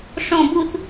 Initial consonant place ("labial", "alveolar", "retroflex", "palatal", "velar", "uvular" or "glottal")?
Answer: retroflex